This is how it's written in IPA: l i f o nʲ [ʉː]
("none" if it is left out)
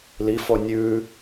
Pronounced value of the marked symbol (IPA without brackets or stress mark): ʉː